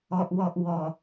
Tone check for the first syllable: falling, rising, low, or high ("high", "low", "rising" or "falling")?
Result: low